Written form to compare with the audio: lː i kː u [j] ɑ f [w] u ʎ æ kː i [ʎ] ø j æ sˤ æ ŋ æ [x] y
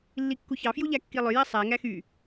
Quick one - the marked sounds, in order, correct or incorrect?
incorrect: ç, incorrect: j, incorrect: lˠ, correct

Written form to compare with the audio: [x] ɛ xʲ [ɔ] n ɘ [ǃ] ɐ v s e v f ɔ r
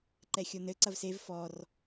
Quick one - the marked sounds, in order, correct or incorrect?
incorrect: ǃ, incorrect: o, incorrect: ǀ

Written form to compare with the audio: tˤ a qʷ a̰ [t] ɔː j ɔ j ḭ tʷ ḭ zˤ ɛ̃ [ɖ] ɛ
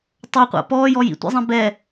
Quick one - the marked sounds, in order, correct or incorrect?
incorrect: p, incorrect: b

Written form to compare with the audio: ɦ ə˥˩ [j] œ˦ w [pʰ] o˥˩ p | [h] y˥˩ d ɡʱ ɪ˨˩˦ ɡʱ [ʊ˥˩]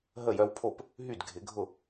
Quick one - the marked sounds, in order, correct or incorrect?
correct, correct, incorrect: ɦ, correct

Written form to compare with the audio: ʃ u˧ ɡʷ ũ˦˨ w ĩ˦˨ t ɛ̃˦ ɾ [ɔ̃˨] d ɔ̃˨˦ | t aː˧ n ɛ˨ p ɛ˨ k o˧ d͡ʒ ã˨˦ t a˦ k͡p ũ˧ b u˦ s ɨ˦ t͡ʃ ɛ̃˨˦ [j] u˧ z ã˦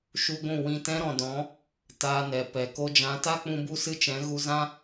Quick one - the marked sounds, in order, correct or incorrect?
correct, incorrect: ɣ

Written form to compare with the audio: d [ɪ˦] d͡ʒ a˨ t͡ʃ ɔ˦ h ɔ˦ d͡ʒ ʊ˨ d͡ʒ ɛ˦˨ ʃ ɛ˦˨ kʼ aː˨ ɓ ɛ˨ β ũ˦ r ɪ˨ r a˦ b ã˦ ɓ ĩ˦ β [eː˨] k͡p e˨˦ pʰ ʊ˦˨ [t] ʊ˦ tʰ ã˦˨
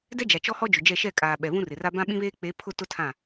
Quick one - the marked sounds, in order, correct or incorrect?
incorrect: ɛ˦, incorrect: eː˦, correct

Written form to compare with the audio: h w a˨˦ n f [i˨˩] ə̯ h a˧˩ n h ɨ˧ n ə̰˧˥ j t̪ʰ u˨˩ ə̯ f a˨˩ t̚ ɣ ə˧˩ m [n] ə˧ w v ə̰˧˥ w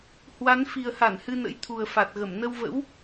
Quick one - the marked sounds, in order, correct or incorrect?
correct, correct

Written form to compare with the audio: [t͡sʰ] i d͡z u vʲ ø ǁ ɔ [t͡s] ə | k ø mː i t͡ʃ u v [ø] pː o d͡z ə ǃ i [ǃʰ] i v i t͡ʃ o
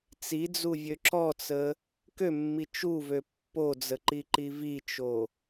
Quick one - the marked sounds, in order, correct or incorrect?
incorrect: t͡s, correct, correct, incorrect: ǃ

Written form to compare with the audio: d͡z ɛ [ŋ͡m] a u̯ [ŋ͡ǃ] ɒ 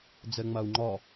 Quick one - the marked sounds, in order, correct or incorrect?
correct, correct

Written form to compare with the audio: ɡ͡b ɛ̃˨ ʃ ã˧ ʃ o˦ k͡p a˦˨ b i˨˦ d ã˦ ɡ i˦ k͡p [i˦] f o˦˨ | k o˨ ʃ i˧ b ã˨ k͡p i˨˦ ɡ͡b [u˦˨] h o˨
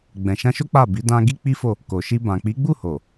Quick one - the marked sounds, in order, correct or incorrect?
correct, correct

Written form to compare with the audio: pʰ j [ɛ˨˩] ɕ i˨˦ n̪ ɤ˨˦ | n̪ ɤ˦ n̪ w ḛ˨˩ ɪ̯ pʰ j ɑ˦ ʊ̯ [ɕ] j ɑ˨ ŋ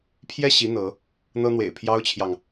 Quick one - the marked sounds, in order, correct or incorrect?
incorrect: ɛ˥˨, incorrect: t͡ɕʰ

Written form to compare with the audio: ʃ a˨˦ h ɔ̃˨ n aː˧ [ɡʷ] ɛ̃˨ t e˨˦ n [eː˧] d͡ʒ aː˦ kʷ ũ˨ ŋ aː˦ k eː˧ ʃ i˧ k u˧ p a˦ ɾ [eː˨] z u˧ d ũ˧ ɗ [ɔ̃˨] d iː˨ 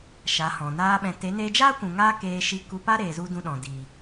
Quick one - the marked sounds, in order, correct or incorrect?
incorrect: ɓ, correct, correct, correct

